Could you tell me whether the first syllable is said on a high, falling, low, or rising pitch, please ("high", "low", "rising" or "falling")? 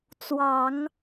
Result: low